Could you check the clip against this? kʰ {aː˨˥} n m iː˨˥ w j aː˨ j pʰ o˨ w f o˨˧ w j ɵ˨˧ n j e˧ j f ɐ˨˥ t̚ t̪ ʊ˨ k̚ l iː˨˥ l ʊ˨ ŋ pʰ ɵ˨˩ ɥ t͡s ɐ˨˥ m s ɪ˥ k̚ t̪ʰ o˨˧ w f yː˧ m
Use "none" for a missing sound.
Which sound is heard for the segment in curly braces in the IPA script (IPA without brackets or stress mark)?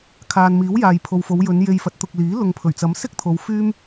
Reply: aː˨